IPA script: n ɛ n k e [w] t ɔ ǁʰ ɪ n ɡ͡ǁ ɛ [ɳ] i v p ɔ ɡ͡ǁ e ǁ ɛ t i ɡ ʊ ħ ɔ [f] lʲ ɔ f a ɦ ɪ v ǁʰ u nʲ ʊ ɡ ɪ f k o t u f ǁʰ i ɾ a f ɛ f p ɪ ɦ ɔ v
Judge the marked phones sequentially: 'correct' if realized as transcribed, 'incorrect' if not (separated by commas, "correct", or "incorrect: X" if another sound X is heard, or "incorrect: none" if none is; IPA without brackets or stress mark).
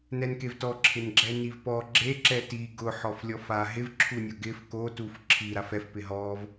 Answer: incorrect: v, incorrect: n, correct